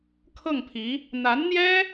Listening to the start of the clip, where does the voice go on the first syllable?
falling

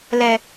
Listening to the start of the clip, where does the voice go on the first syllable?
low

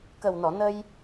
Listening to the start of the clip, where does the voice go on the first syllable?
low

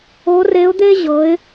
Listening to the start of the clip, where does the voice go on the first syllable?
rising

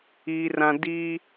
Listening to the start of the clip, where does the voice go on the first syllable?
high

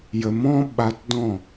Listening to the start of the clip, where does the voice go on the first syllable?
low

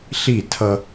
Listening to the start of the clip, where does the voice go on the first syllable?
falling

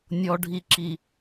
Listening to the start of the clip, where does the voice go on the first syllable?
low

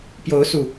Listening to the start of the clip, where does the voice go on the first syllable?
rising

